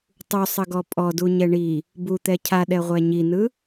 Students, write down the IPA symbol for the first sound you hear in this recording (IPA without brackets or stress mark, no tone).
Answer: tˤ